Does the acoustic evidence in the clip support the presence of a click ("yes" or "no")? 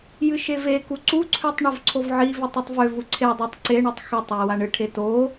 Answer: yes